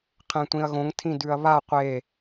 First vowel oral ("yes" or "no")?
no